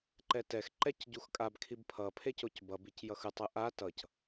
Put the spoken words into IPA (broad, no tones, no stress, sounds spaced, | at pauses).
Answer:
ǃ ɛ t ɛ x ǃ ɛ c ɟ u x kʼ a b kʰ i b pʰ ʌ pʰ e c o c b ʌ b i c j ʌ x ɯ tˤ ɯ ʔ a t ʌ c